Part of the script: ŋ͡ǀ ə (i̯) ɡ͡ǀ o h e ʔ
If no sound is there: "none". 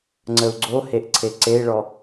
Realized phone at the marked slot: u̯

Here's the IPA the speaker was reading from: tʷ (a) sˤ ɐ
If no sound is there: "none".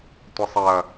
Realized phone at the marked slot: ə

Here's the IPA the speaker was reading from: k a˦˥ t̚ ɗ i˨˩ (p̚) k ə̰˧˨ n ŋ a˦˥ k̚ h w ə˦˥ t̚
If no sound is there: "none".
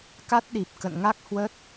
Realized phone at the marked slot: p̚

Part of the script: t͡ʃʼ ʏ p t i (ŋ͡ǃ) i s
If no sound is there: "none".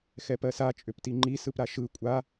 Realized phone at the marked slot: ŋ͡ǃ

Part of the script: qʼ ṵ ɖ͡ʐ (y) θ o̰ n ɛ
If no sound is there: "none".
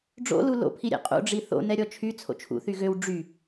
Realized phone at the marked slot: i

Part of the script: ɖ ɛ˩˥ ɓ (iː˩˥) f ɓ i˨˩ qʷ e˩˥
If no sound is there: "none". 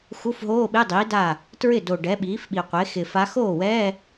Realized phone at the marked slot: iː˩˥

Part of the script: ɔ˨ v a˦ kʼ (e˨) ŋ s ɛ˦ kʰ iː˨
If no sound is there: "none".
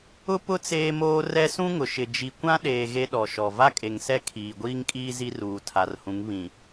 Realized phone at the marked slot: e˨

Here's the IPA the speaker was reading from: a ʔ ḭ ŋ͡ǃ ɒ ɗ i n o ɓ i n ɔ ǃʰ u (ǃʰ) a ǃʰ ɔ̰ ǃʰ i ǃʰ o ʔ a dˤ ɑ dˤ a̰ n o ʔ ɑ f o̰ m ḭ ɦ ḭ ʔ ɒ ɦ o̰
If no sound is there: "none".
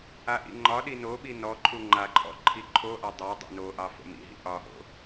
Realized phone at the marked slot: ŋ͡ǃ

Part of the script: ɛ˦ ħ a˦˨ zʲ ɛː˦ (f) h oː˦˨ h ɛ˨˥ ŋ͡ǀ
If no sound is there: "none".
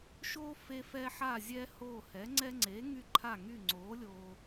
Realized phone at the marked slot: none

